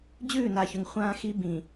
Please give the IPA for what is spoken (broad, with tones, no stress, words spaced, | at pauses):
d͡ʑʉː˦˨na˨çʉ˨ŋ χʷãː˦xi˦ bĩ˨